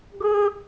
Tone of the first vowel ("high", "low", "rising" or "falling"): high